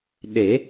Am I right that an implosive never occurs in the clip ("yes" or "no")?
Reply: no